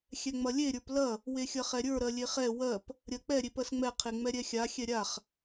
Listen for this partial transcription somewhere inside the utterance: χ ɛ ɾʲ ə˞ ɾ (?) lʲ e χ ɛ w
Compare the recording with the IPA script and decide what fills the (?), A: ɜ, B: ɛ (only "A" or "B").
A